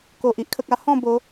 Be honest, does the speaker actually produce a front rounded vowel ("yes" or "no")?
no